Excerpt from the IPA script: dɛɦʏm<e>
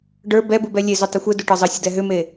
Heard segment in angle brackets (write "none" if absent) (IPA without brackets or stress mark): e